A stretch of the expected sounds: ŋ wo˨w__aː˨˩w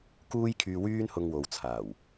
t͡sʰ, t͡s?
t͡sʰ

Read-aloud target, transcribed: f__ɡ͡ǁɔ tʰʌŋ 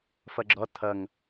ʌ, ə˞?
ʌ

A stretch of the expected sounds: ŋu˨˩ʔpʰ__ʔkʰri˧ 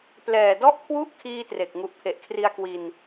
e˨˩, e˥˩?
e˨˩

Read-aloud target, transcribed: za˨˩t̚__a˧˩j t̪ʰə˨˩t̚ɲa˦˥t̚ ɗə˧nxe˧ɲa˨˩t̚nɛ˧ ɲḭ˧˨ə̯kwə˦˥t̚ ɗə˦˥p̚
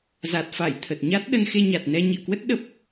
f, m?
f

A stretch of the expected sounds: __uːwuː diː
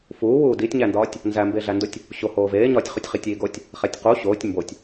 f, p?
f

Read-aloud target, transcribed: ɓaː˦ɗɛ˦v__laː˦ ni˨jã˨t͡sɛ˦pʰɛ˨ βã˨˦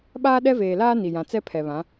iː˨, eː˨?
eː˨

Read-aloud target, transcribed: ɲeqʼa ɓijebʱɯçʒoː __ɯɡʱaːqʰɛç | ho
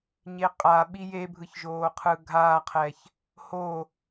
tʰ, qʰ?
qʰ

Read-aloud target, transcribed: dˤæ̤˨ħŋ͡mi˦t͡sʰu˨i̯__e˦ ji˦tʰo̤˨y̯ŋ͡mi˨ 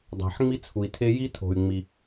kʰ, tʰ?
tʰ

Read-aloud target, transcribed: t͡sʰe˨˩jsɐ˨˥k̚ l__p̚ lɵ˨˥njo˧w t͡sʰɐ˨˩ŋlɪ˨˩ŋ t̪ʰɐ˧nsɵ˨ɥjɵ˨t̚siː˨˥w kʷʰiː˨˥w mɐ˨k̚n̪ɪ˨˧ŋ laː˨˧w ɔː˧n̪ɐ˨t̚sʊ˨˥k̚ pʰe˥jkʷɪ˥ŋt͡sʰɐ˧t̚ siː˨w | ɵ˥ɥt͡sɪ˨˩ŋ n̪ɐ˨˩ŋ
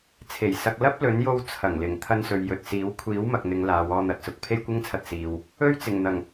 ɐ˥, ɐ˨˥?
ɐ˥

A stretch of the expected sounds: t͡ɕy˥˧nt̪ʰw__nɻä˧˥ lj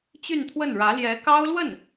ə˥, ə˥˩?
ə˥˩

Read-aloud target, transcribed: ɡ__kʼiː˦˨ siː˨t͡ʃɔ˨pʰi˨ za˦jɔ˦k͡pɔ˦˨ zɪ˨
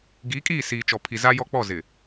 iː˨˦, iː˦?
iː˨˦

